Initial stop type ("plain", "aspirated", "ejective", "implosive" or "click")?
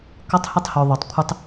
plain